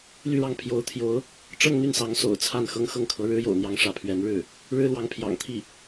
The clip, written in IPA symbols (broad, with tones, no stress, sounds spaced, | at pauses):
l y˥˧ ɻ ɑ˥˩ ŋ pʰ j o˧˥ ʊ̯ t̪ʰ j o˧˥ ʊ̯ | ʈ͡ʂ ɤ˥˧ ŋ n̪ y˥˩ n s ɑ˧˥ ŋ s o̰˨˩ ʊ̯ t͡sʰ a˥˩ n x ɤ˥ ŋ x ɤ˥˩ ŋ kʰ ɤ˧˥ ɻ ɻ̩˥ j o̰˨˩ ʊ̯ n̪ j ɑ˥˧ ŋ ʂ ä˥˩ pʰ ɥ ɛ˧˥ n ɻ ɻ̩˥˩ | ɻ ɻ̩˥ l w ɑ˧˥ ŋ pʰ j ɑ̰˨˩ ŋ t̪ʰ i˥˩